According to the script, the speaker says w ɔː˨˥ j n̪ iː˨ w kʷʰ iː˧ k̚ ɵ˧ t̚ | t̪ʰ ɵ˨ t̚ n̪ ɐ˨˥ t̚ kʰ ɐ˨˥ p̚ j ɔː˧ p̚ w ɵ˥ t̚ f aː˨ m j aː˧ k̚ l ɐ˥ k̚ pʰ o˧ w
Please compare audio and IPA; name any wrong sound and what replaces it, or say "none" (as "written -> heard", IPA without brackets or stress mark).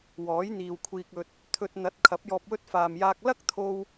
pʰ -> t̪ʰ